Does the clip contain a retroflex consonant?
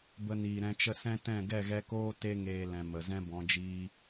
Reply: no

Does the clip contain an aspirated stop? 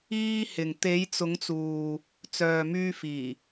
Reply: no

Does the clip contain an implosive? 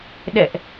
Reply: yes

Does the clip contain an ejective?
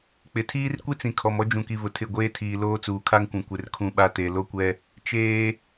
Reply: no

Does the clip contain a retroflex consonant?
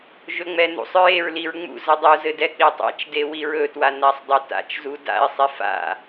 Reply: no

